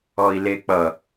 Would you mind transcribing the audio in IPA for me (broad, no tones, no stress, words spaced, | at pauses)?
ɔi̯lek͡pʌ